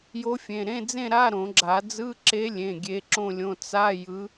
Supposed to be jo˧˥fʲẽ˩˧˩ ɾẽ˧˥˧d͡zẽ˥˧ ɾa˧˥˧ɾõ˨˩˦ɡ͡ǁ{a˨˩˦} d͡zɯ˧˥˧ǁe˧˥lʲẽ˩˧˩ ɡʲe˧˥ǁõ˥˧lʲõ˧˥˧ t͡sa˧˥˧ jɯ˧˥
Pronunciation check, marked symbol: correct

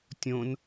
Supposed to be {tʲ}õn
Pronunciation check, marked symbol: correct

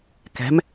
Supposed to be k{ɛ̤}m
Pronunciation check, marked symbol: correct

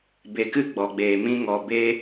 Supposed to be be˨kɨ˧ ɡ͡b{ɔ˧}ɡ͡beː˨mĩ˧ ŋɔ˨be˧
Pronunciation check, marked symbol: incorrect: ɔ˨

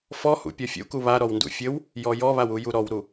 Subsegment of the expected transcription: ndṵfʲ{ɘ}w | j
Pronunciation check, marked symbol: correct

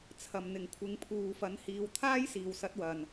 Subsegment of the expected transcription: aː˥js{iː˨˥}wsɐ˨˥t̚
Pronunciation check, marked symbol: incorrect: iː˨˩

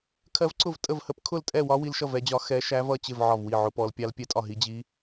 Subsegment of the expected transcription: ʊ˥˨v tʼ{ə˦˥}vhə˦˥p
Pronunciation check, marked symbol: incorrect: ə˥˨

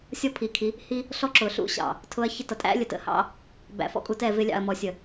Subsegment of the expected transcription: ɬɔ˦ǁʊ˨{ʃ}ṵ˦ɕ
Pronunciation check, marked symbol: incorrect: ɬ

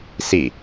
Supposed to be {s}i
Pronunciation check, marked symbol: correct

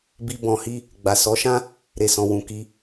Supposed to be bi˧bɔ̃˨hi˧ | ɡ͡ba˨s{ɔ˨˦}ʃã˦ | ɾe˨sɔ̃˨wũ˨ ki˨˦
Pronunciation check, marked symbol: correct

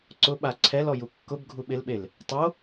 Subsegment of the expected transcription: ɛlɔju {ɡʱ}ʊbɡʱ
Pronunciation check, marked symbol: incorrect: kː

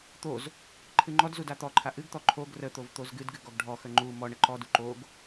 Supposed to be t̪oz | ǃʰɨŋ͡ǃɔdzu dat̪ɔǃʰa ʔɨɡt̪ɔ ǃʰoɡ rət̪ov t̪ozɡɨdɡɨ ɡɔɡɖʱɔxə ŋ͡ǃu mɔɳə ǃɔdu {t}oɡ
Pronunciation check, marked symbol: incorrect: ǃ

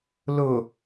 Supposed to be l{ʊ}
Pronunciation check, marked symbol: correct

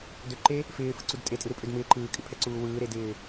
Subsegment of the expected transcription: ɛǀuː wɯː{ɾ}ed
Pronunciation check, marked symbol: correct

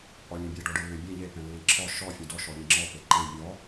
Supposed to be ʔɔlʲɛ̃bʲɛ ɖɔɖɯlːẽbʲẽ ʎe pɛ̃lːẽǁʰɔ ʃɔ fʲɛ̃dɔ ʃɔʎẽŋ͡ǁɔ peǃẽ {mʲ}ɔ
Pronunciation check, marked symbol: correct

